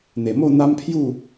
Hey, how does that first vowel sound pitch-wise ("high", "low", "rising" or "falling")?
low